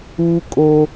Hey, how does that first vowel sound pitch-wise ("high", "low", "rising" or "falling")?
high